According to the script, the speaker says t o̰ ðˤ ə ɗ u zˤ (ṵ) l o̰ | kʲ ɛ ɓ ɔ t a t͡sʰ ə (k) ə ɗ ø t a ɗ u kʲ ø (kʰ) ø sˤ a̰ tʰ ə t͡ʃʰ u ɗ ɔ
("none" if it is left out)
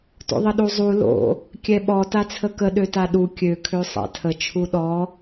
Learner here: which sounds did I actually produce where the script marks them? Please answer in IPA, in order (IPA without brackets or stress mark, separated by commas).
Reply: u, k, kʰ